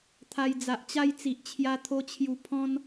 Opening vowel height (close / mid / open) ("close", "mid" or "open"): open